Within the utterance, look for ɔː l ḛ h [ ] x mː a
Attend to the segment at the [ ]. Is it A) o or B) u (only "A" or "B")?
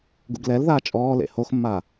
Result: A